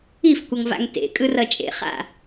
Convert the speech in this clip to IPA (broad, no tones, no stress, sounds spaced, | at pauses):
i f kʷ ʌ ŋ v a̰ ŋ t ḛ kʼ ɯ r ʌ t͡ʃʼ ḛ χ a̰